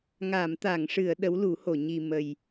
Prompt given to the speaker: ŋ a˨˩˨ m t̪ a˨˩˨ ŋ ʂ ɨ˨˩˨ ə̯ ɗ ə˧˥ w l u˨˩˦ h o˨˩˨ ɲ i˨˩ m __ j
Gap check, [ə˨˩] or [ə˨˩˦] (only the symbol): ə˨˩